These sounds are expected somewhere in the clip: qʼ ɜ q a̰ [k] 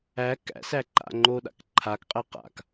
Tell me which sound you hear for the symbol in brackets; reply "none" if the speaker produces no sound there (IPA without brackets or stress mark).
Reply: k